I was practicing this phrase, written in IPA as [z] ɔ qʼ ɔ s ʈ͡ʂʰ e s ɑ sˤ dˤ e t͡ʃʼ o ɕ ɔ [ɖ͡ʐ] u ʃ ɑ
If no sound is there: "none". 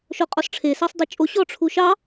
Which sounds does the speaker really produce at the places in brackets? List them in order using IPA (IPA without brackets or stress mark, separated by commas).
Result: ʃ, ʈ͡ʂʰ